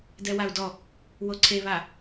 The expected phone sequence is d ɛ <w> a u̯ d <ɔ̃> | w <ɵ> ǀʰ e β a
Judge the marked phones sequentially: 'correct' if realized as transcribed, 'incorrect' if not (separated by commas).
correct, incorrect, incorrect